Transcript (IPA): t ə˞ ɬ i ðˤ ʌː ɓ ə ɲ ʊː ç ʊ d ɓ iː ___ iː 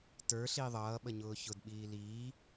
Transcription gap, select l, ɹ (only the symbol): l